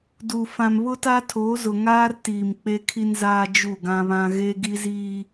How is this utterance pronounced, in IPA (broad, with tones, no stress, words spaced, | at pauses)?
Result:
du˨ fã˨mβʊ˦ta˦ tʰoː˨˦zʊ˨ ŋaː˦r tiː˨mk͡pe˦kʰi˦nzaː˦ d͡ʒu˦˨ɡã˦βã˦ ɣeː˦ɡi˦ziː˦